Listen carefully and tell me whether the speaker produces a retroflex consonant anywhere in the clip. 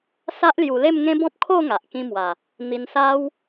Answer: no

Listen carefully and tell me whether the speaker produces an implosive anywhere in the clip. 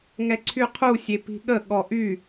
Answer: yes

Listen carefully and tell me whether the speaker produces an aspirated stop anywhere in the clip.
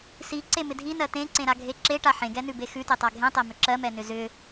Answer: no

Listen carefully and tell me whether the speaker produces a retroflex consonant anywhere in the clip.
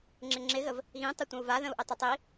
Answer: no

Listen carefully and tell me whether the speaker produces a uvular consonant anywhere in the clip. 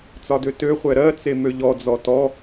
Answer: yes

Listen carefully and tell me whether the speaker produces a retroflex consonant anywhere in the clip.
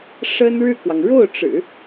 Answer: yes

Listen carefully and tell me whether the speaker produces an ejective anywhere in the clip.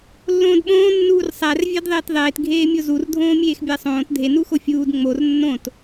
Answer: no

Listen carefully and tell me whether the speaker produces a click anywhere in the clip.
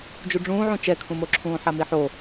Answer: yes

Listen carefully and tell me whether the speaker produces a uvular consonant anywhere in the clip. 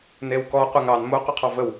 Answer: yes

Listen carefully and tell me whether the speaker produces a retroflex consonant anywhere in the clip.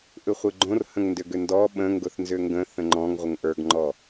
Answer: no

